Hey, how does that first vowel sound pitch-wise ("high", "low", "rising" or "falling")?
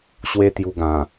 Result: high